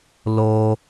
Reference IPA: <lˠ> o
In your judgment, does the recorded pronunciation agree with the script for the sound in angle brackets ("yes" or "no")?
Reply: no